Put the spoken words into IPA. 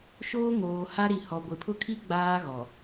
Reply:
ʃ oː˦ ŋ oː˨ h a˦ ɾ i˨ h ɔ˨ ɡʷ ɪ˨ pʰ ʊ˦ kʰ i˦ ɡ͡b aː˦ ɣ ɔ˨

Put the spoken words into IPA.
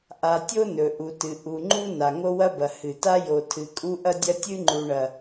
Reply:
ʔ a˨ tʲ o˦ n ɵ˨ ʔ u˨ t ɨ˨ ʔ u˨ ŋ͡ǃ u˦ n a˨ ŋ o˦ w ɐ˦ b ɐ˨ h ɨ˨ t a˦ j o˨ tʰ ɨ˨ kʼ u˦ ʔ ɐ˦ dʲ ɐ˦ tʲ ɨ˦ ŋ͡ǃ u˨ ɳ ɐ˨

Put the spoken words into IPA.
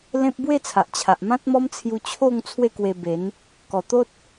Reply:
l ẽ˦ p̚ b w e˥˧ t͡sʰ a˨ ʔ t͡ɕʰ a˨ ʔ m ã˦ t̚ m ɔ˦ m t͡sʰ j u˧ t͡ɕʰ o˥˧ ŋ t͡sʰ w e˥˧ k w e˧ b e˨˦ n | k ɔ˨˩ t̪ o˦ t̚

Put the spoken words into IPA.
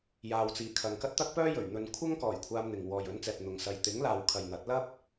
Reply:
j aː˨ w t͡s iː˨˩ kʰ ɐ˨ ŋ k ɐ˥ t̚ t̪ ɐ˥ k̚ p œː˥ j ɵ˨˩ ɥ n̪ ɵ˨ n kʷʰ ɐ˥ ŋ k ɔː˨˩ j kʷʰ aː˧ m n̪ ɪ˨ ŋ w ɔː˨ j ɵ˨˥ n t͡s ɛː˨ p̚ n̪ ʊ˨ ŋ s ɐ˨ j t̪ ɪ˨˥ ŋ l aː˨ w kʰ ɐ˨ j n̪ ɐ˨˥ t̚ l ɐ˥ p̚

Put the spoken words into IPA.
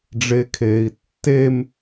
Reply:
ɖ͡ʐ e kʰ eː i̯ tː e m

